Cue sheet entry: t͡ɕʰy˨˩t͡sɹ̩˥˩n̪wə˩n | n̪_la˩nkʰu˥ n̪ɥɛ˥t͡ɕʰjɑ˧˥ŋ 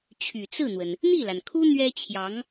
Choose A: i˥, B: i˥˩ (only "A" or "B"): B